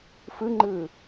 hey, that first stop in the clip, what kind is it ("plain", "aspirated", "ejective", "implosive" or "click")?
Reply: click